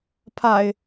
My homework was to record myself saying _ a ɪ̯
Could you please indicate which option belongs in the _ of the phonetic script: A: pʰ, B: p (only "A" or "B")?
A